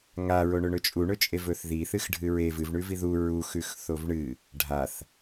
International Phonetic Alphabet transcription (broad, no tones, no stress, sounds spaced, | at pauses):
ŋ a ɹ o ɳ ɵ ɳ ɵ t͡ʃʼ u ɳ ɵ t͡ʃʼ e v ɵ θ ð i θ ɨ x ɖʱ ɨ ɹ e v ɨ v ɳ ʉ v i ð u ɹ u x ʉ x θ o v ɳ ɨ | ɖʱ a θ